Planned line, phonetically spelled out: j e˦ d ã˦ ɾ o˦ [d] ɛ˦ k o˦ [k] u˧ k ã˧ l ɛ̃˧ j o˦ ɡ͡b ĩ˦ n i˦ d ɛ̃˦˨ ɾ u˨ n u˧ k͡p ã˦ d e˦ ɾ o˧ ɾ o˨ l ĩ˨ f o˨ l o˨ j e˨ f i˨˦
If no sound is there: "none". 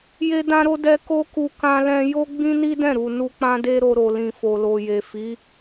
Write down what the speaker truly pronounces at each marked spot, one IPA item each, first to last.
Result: d, k

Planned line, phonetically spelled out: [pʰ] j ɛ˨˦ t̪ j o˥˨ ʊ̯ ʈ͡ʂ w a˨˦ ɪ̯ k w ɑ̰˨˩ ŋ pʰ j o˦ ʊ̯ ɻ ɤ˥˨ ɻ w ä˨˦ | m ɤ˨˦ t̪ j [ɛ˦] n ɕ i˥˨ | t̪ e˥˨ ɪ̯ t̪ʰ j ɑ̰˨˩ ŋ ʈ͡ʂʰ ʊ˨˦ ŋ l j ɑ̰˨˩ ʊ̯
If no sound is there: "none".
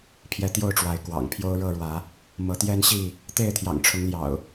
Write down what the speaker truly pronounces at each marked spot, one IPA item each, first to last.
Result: pʰ, ɛ˦

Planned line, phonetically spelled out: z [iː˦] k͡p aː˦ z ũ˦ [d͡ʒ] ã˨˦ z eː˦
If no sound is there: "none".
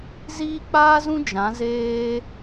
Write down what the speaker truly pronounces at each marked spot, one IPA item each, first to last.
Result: iː˦, d͡ʒ

